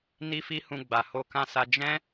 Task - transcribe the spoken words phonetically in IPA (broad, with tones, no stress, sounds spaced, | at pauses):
n i˦ f i˦ h ũ˧ ɡ͡b a˨ h o˧ k ã˧ s a˧ d͡ʒ ɛ̃˦